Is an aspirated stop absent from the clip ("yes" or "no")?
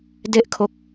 no